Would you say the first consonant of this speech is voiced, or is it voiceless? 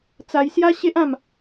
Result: voiceless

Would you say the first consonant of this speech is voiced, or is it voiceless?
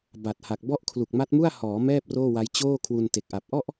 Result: voiced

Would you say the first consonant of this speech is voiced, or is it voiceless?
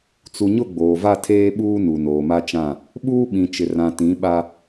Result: voiceless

